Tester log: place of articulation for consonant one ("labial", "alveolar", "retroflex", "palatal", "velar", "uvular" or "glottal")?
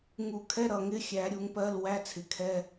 velar